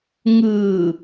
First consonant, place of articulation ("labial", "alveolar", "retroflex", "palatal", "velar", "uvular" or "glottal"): velar